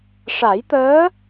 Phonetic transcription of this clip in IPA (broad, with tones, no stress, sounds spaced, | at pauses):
ʂ a˨˩˦ j t̪ əː˧˥